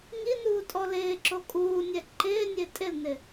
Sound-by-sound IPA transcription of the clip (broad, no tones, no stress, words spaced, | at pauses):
ŋinuːtʼɔ lɪːǁo kʼuːnʲɛ ǃɪːnʲe tʼɪlnɪ